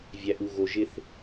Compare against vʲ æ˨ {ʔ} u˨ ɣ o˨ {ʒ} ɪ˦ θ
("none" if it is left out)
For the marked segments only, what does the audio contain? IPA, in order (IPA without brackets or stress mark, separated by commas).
ʔ, ʒ